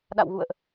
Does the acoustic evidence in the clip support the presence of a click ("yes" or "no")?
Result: no